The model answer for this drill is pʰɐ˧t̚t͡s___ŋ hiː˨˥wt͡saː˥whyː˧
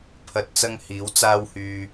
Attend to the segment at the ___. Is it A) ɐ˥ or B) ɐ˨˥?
A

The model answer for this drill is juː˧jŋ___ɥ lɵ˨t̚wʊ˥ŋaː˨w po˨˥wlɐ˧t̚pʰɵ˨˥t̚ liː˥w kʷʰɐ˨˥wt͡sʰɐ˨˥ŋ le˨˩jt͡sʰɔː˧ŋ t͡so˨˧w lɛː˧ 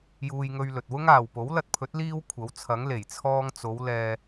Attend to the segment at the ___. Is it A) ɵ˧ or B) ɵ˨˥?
A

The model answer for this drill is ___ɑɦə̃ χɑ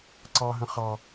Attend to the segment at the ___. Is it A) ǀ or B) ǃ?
A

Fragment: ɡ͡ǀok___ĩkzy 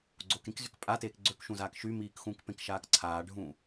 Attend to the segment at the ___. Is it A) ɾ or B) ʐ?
A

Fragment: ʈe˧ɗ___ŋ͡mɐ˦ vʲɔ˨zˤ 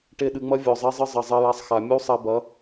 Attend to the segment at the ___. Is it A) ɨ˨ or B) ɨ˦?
A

